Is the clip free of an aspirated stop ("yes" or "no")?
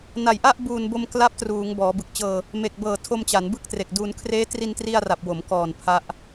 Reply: no